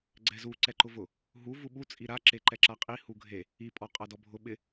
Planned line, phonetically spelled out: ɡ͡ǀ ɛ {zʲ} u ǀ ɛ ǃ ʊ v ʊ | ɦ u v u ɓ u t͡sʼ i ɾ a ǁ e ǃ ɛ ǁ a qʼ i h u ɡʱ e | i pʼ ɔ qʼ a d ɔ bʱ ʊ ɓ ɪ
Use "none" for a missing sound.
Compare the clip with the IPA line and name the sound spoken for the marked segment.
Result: z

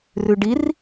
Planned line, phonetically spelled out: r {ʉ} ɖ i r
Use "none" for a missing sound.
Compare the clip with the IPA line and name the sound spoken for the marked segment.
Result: ʉ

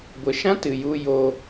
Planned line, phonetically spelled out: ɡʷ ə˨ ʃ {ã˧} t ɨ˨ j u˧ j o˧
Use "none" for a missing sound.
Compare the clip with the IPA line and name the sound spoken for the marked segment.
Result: ã˦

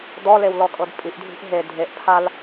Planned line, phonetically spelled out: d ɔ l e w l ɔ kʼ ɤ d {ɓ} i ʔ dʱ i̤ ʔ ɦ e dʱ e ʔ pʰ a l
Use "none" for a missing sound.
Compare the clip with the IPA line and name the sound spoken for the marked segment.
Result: pʼ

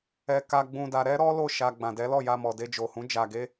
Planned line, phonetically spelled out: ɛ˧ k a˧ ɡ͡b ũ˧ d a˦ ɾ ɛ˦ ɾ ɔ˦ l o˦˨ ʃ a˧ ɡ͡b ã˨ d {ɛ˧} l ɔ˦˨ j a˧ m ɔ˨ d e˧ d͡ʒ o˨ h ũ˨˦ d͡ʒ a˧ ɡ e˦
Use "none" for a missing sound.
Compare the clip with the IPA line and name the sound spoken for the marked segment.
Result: ɛ˨˦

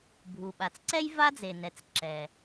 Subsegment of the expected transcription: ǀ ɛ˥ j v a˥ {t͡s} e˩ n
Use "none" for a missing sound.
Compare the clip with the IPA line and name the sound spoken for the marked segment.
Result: d͡z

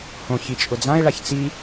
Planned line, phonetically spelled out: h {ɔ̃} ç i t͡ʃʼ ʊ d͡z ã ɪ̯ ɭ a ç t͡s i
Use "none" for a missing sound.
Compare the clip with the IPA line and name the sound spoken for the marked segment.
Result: õ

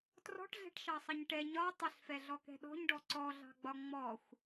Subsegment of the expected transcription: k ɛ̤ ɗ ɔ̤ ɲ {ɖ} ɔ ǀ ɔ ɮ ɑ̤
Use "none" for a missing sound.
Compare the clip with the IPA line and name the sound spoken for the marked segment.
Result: ɖ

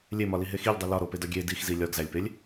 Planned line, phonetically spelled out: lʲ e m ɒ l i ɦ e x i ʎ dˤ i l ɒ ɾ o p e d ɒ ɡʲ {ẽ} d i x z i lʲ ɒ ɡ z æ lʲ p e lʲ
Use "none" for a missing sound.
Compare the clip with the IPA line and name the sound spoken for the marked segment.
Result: e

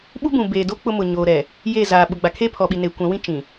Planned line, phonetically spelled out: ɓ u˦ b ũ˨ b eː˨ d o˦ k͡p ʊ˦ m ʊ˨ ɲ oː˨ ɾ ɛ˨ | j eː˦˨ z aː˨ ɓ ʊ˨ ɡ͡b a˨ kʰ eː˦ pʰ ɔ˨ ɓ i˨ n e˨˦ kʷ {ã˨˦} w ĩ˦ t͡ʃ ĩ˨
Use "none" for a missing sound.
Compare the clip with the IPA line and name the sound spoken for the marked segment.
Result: ã˨˦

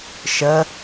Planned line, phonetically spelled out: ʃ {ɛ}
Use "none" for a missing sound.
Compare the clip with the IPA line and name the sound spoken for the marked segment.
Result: ə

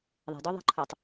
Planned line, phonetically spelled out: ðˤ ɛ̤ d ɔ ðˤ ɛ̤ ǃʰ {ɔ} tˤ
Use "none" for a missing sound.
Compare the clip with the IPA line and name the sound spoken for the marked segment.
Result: o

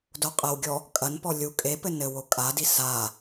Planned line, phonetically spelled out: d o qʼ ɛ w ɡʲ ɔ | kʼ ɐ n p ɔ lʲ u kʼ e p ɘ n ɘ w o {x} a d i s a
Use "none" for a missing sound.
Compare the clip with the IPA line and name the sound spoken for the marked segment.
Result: kʼ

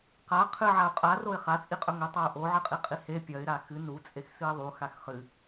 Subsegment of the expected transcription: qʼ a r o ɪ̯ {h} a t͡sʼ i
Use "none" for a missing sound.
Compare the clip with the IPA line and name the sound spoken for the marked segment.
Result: χ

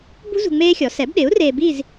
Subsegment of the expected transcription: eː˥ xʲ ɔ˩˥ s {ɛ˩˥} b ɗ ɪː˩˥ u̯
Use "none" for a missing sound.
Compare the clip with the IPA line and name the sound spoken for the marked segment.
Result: ɛ˩˥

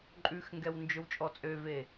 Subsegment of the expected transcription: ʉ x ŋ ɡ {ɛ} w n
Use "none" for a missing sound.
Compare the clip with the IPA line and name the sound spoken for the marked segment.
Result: ɛ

